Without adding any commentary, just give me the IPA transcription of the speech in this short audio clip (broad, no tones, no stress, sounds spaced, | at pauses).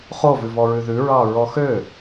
χ o v ʉ v ɔ ɹ ʉ ð ʉ ɹ ɑ ɹ ɔ x ø